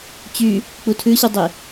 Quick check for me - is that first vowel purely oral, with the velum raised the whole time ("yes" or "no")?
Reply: yes